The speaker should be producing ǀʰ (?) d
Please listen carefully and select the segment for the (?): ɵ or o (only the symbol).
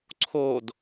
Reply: o